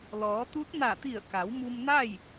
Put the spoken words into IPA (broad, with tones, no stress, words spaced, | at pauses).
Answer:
lɔː˩˧t̪u˧˥t̚ na˧˩t̪i˧˩ə̯ka˩˧w mu˧mna˥˨j